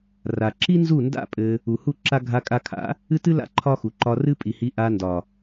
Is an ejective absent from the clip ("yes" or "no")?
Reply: no